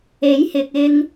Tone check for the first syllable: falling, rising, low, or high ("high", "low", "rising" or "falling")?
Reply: rising